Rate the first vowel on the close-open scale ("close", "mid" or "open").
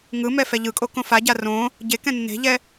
close